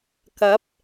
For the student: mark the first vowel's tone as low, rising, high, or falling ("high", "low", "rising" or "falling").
rising